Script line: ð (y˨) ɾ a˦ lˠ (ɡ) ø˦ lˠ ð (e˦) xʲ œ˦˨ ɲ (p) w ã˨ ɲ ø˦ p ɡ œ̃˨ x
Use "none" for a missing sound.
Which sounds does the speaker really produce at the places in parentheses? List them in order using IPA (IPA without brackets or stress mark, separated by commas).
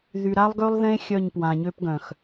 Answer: y˨, ɡ, ẽ˦, p